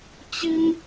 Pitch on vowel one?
high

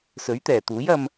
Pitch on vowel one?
rising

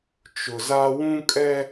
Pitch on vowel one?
low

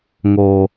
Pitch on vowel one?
low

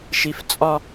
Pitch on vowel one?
high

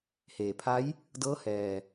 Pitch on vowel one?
low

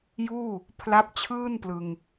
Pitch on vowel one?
falling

